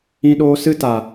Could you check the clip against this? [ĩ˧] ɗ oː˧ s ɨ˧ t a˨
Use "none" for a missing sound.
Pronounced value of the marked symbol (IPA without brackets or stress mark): ĩ˧